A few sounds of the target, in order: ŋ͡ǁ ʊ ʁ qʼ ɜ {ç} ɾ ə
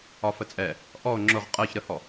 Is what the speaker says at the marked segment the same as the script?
yes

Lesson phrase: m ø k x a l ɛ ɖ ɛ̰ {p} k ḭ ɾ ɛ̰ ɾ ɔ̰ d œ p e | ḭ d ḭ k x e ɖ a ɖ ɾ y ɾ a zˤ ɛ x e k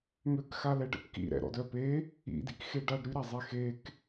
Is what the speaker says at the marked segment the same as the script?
yes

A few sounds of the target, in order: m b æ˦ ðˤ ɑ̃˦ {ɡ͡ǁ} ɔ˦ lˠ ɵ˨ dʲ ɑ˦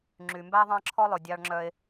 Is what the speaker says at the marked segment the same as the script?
no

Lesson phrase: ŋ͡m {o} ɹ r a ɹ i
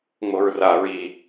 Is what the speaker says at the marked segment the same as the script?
yes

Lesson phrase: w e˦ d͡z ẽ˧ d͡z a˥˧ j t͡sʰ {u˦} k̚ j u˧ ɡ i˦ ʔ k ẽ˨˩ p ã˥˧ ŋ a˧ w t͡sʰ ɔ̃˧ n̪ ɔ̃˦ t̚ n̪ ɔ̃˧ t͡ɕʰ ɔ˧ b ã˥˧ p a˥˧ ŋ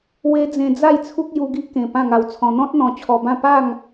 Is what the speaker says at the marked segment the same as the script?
yes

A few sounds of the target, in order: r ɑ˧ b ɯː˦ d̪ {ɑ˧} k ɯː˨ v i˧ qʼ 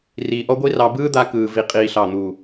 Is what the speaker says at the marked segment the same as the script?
no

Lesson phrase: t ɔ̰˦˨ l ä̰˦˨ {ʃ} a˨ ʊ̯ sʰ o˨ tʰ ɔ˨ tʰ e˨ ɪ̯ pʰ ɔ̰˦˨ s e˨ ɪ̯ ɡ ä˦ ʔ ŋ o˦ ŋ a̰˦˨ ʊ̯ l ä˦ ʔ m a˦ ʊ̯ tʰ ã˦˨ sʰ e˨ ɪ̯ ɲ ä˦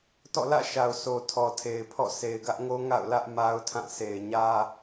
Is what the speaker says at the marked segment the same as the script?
yes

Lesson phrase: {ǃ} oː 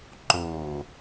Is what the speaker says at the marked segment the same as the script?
yes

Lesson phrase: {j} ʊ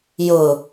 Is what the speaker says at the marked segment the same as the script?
yes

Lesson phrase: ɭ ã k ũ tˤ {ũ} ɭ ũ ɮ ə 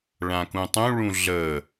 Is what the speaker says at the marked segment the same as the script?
yes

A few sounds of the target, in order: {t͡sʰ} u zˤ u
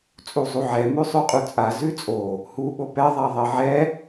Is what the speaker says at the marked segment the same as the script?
no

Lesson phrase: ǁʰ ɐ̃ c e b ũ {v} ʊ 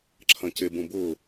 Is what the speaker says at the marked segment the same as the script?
no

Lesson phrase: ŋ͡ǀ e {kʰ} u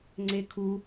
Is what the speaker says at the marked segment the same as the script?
yes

